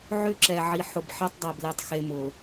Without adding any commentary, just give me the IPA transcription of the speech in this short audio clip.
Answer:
ʕ ʏ˦ ǁ ɛ˨ ʕ i˨ ħ ʊ˨ b ħ e˦ tˤ dˤ ɛ˨ b l e˨ tˤ x e˨ m ʊ˨

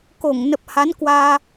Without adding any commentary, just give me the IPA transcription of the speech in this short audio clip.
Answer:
k o˧˩ ŋ n ə˨˩ p̚ h a˨˦ n k w aː˧

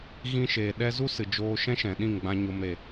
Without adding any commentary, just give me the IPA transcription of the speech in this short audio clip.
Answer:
ɣ ĩ˧ ʃ eː˨ ɗ ɛ˧ z u˦ s ɨ˨ d͡ʒ oː˧ ʃ ɛ̃˦ ʃ ɛ̃˨ ɗ ĩ˦˨ ŋ ɡ͡b ã˧ ɲ o˦ m ɾ e˧

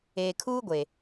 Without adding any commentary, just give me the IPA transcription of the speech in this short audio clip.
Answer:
eː˨ kʰ uː˦ ɡʷ e˨

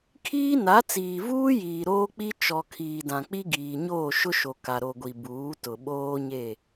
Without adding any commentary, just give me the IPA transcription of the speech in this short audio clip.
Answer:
kʰ iː˦ n a˨˦ t͡s iː˨ v uː˦ j iː˨ ɾ oː˦ k͡p i˦ t͡ʃ ɔ˨ kʰ iː˨ d ã˨ k͡p i˦ ɡ iː˨ ɲ oː˦˨ ʃ ʊ˦ ʃ o˨ k a˨ ɾ o˨ ɡʷ i˨ b uː˨˦ t ʊ˨ ɓ oː˦ ɲ e˦˨

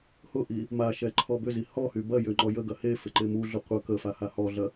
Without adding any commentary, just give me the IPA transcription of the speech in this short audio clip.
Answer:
h ʊ ʔ i | m a ʃ ɛ ǃʰ ɔ b ʏ z i h ɔ h y b ɐ j ʏ ŋ͡ǃ ɔ j ə ɡ ɐ h e f ɪ ǃ ɪ m u ɮ ʊ qʷ ə k ə f a h a h ɔ ɮ ɐ

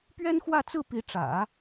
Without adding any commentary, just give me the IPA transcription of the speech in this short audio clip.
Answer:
p ɥ ɛ˥ n x w ä˥˧ t͡s ɹ̩˥˩ p i˧˥ ʈ͡ʂ ä̰˨˩˦

